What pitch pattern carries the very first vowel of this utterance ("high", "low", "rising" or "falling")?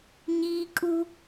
high